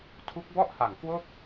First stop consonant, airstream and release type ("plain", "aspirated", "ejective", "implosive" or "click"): aspirated